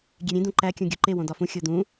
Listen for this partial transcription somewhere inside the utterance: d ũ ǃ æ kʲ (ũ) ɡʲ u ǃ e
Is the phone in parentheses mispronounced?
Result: no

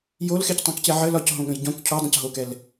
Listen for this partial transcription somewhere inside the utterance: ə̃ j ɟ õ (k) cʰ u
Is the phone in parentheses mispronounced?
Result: no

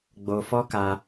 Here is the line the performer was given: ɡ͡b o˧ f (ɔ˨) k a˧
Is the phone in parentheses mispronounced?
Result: yes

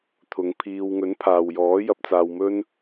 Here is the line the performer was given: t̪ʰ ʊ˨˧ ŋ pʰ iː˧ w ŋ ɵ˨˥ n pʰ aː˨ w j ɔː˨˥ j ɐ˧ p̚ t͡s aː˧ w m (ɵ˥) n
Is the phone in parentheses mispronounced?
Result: no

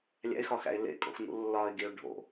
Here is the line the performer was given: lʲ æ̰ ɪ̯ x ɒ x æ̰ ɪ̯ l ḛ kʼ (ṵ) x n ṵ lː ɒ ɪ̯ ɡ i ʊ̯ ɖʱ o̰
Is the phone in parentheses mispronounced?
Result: yes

